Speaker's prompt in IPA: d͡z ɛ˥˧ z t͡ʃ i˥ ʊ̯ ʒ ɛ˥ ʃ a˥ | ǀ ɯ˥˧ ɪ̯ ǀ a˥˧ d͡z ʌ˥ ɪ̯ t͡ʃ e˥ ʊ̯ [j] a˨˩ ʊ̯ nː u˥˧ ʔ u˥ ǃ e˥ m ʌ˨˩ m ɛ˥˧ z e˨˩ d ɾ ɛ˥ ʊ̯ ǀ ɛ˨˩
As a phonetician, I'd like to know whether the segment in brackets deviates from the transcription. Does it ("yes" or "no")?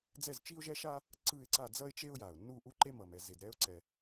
no